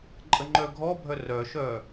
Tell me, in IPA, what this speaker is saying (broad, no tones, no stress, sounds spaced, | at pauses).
ǃʼ ə ŋ͡ǃ œ ɡʱ ɔ bʱ œ r œ ʃ œ